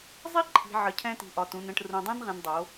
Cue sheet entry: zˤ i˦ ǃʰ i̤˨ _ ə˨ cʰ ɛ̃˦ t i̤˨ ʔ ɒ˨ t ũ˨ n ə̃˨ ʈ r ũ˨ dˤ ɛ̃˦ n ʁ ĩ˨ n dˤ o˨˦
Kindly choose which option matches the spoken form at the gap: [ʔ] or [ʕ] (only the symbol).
ʕ